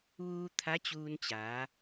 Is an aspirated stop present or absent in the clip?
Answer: present